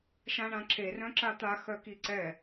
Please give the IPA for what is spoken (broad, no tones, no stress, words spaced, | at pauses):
ʃãɳãǁe rœ̃ǁat̪a xœkiǀɛ